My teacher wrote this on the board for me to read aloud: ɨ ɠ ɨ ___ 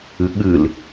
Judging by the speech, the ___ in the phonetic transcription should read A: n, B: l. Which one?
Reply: B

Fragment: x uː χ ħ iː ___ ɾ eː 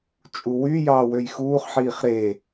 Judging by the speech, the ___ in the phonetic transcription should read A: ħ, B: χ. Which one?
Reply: B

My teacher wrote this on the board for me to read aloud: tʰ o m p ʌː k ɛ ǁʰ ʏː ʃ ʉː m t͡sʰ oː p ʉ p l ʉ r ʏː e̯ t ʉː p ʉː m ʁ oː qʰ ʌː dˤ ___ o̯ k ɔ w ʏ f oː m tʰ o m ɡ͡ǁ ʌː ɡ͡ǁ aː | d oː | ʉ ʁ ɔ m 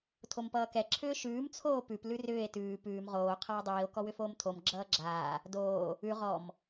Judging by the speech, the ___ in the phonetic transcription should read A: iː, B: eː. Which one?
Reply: A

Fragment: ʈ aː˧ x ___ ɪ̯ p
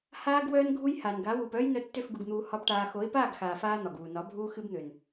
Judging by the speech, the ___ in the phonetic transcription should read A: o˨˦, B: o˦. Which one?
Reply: A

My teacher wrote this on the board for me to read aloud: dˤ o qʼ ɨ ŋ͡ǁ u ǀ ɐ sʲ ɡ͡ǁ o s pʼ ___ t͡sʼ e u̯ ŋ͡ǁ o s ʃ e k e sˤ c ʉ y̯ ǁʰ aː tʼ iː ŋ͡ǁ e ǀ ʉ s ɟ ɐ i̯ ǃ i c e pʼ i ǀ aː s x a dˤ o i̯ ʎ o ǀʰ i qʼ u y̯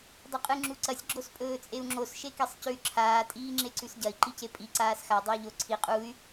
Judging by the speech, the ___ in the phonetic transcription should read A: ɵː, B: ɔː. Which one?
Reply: A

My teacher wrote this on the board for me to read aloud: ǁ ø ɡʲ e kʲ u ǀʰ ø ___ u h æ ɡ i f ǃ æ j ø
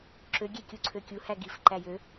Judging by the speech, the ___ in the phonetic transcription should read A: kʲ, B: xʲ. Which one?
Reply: A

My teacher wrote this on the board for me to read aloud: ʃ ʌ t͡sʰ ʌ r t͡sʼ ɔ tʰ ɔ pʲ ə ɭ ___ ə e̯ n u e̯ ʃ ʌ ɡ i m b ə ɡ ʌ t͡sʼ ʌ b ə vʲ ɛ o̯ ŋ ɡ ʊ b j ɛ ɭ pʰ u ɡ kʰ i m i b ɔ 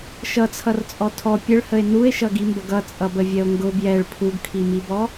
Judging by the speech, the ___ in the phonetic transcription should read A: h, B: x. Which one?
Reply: A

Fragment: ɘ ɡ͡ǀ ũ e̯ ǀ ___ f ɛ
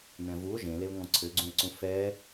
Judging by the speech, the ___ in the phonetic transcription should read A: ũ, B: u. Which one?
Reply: A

